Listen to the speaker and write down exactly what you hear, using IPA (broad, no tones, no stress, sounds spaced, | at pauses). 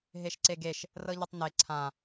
ɦ e ʃ ǀ e ɡ e ʃ | r ɤ ʎ ə tˤ n e ǀʰ ã